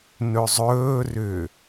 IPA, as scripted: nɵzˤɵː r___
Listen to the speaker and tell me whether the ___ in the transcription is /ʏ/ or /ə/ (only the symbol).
ʏ